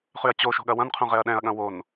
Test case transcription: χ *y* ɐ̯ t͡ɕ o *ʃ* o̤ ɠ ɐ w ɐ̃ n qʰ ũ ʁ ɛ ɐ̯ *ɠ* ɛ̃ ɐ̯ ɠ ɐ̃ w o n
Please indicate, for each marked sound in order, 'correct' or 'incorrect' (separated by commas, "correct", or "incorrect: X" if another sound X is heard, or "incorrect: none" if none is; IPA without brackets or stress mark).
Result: correct, correct, incorrect: ɗ